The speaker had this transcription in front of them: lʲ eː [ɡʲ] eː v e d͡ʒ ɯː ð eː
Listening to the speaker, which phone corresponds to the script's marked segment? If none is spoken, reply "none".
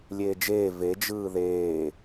d͡ʒ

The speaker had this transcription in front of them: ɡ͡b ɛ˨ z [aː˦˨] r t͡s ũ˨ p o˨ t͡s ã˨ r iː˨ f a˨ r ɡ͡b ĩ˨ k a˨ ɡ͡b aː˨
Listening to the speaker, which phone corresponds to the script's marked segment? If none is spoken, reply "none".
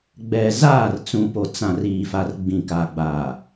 aː˦˨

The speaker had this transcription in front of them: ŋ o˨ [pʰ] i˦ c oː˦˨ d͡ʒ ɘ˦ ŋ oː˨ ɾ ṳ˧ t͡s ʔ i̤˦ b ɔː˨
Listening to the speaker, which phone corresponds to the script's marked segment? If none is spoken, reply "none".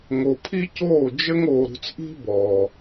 pʰ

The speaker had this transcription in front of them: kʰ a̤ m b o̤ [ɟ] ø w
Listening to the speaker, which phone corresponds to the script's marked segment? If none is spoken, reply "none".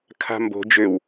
d͡ʒ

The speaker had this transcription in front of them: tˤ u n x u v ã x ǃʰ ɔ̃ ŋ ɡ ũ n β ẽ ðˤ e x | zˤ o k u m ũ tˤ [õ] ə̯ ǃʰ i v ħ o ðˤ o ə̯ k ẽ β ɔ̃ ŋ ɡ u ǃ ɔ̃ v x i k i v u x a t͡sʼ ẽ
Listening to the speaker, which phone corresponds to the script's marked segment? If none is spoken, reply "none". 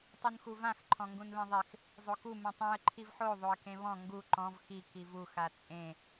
ũ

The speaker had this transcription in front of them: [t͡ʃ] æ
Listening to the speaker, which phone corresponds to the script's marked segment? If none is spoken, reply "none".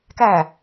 k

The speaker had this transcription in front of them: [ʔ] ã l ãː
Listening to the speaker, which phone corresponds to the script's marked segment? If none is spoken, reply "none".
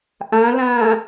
ʔ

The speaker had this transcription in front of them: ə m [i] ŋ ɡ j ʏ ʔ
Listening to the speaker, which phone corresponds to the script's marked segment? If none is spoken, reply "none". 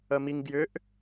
i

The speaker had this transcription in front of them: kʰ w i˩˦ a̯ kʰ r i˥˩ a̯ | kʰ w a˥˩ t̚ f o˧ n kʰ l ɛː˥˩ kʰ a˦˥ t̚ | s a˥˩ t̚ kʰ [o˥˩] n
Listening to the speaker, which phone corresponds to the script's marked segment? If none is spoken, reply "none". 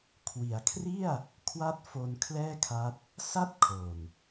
o˨˩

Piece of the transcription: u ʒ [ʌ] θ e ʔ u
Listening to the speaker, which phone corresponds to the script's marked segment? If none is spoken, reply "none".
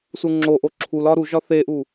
ɒ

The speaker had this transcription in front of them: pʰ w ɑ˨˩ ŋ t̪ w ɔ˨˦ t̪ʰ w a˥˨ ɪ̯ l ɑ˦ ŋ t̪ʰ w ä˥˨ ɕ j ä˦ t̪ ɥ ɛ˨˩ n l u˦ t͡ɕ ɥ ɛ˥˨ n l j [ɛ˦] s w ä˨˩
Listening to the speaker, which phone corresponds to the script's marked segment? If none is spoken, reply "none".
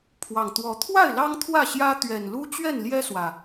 ɛ˦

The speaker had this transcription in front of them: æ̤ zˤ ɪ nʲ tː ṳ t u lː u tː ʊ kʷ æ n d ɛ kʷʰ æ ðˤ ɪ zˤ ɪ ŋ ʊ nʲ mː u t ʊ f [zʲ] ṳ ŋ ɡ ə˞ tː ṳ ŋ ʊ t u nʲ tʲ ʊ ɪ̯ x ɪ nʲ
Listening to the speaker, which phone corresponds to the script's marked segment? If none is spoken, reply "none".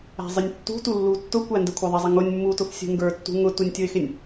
sʲ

